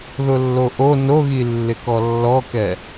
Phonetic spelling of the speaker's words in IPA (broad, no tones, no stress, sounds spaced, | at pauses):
ð ʊ lː o ʔ o n o ɣ i lː ɪ k ɔ lː ɔ k ɛ